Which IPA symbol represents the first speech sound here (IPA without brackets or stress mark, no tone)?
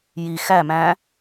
j